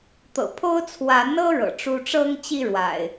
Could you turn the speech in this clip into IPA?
t̪ ɤ̰˨˩ pʰ o˦ ʊ̯ t͡sʰ w a˨˦ n ɤ˦ ɻ ɤ̰˨˩ ʈ͡ʂ u˦ ʈ͡ʂ ɤ˦ ŋ t͡ɕ i˦ ɻ w a̰˨˩ ɪ̯

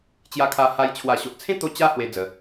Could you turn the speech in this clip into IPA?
t͡ɕ j a˧ kʰ a˧ h a˧ j t͡ɕʰ w a˨˩ ɕ o˨ ʔ t͡sʰ ẽ˦ t̪ o˧ t͡ɕ a˦ h w e˦ d͡z ə˧

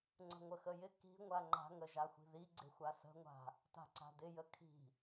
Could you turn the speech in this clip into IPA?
ŋ͡ǀ ə̤ ŋʷ ə x ə j ɪ k i̤ ŋʷ a ŋ͡ǃ a̤ ŋ ə ʒ a xʷ i̤ ð i ɡ͡ǀ ɪ xʷ a s ə̤ ŋʷ a̤ | t a̤ ǀ a̤ d ɪ j ə kʰ i̤

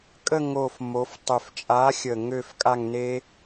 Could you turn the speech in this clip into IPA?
kʼ ə˦˨ ŋ o˨˩ f m o˩˧ f tˤ ø˨˩ f t͡ʃʼ a˨˥ xʲ ə˨˩ ŋ ø˦˨ f kʼ a˦˨ ŋ n e˦

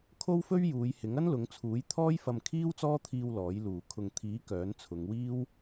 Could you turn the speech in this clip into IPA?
kʰ o˥ w f ɵ˥ ɥ j uː˨˧ j h ɪ˨˥ ŋ ɐ˥ n l ʊ˨˧ ŋ t͡sʰ uː˨˥ j t̪ʰ ɔː˥ j f ɐ˧ m kʰ iː˥ w t͡s ɔː˥ t̪ʰ iː˧ w l ɔː˨˥ j l uː˨ kʰ ʊ˨ ŋ t̪ʰ iː˨˥ k œː˨˥ n t͡sʰ ʊ˨˧ ŋ w iː˥ w

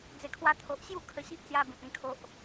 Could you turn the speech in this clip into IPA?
d͡z e˨˩ kʰ w a˧ t̪ʰ o˨ ʔ ɕ j u˥˧ kʰ ə˧ ɕ i˦ ʔ t͡s j a˧ b ĩ˨ t̚ ĩ˧ kʰ o˦ ʔ

